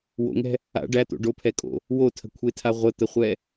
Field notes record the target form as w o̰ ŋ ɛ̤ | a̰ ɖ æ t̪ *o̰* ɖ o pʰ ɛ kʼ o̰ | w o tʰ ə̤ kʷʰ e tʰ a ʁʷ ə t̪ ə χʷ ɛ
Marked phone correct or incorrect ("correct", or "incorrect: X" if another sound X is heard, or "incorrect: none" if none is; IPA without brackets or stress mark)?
correct